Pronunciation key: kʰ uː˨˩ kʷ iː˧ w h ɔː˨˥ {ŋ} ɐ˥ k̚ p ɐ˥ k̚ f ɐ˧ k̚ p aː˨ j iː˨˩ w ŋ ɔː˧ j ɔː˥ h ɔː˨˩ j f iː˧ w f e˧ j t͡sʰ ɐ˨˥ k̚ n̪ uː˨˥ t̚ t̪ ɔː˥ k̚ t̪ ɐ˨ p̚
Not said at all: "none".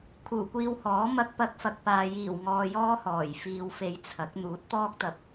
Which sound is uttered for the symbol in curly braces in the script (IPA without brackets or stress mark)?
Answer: m